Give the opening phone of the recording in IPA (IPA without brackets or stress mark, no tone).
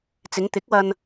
t͡s